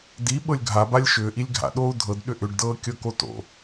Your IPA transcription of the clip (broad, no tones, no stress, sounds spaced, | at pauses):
d i ɓ ɤ lʲ ɡʱ a b a lʲ ʃ ʏː ʔ i lʲ ɡʱ a̰ ɗ oː u̯ dʱ ɤ d ɗ ʏ ʔ ʏ ɖ d ɤː kʲ ɤ k o t o̰